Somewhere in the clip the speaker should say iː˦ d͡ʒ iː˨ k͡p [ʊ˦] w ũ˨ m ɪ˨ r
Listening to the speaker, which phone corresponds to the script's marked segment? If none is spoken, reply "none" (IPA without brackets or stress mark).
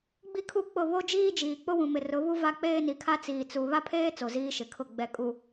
ʊ˦